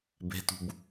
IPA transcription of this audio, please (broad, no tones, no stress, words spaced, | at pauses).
be̤tṳb